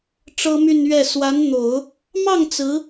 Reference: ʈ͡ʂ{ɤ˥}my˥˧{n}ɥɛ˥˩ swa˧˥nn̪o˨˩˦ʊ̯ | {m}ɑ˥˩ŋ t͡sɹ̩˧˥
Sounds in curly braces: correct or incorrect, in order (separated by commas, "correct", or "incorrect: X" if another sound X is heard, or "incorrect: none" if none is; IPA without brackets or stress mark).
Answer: correct, correct, correct